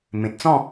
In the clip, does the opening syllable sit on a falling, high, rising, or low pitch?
low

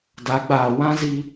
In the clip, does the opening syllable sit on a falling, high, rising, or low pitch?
rising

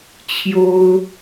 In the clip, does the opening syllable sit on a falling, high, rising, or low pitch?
high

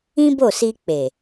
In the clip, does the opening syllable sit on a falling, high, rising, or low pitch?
high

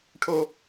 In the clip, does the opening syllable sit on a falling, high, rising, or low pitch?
high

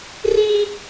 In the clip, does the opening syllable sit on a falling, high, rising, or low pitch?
high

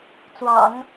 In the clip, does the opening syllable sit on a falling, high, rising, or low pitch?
low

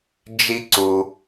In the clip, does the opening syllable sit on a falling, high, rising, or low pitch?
high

